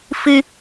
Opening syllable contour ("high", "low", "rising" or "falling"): high